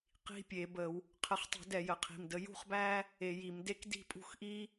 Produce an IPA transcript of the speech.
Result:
qi̤˧˥˧pʲe˧˩˧bə˧˩˧w | qʰə˨˦χtˤṳ˧˩˧d ɛ˧˩˧jə˧˩˧qʰi̤˩˧˩m də˨˦ jṳ˥˨χbæ˥ | e˧˩˧ji˧˩˧mde˥k di̤˥˨pʼṳ˥˨xʔi˥

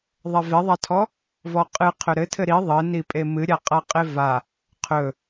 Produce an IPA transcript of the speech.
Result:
ðˤɛveðˤatʰɔ | vɔqʼɨ qʰɵɾɘtʰɘ ɾi ðˤɘ nipʼemɨɾʲa qʼaqʼeva | qʰɵ

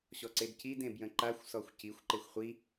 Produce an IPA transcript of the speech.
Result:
ɕɔǀedcid ẽbjə̃ǃaxʷsɔxʷ cixʷǃexʷ χʷi

